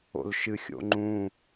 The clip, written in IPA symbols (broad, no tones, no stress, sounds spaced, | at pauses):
o̰ l ʃ ɨ xʲ o̰ ŋ͡ǃ ũ